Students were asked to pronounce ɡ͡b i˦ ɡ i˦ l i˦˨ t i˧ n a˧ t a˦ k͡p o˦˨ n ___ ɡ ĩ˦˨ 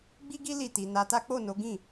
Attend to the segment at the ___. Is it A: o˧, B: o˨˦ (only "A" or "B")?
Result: B